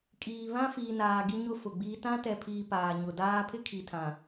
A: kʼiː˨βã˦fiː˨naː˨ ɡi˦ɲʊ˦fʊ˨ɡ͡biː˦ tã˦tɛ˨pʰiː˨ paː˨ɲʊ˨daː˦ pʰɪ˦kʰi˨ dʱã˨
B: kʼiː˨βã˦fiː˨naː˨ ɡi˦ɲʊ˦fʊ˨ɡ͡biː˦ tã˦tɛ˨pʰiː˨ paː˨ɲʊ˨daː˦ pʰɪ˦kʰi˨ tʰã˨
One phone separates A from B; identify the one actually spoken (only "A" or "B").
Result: B